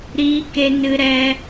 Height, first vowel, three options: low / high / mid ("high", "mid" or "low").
high